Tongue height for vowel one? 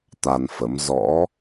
low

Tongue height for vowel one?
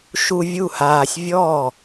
high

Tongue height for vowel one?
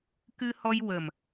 high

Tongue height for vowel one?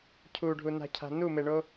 high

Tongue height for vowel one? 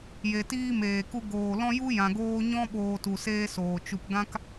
mid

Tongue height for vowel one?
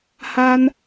low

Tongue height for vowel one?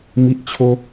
high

